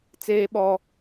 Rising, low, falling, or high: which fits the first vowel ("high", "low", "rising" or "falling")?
high